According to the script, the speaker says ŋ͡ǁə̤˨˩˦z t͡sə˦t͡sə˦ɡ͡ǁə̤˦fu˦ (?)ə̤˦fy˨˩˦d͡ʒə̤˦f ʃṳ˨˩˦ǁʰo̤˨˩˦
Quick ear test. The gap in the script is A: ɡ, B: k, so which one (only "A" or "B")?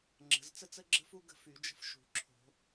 A